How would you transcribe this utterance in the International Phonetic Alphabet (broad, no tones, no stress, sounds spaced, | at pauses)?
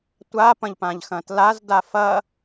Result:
tʷ a p ɐ̃ ʎ p ã ʎ x ɐ̃ t l a z d a f ɐ